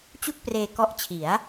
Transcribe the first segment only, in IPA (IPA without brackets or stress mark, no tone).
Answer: t͡ɕ